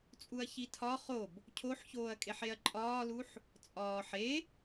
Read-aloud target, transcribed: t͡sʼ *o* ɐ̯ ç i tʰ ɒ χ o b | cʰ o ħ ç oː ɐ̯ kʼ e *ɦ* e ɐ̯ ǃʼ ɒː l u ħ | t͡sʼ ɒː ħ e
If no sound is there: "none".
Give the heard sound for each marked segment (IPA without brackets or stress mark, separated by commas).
u, ħ